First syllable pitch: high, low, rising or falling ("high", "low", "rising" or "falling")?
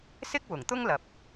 high